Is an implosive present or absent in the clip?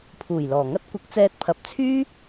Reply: absent